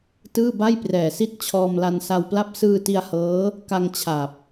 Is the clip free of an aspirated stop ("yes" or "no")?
no